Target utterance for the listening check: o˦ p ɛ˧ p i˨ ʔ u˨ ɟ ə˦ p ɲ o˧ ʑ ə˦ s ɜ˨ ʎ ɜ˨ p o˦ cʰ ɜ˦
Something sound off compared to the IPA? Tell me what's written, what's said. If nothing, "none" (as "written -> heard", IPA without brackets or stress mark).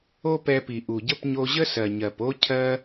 ʎ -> ɲ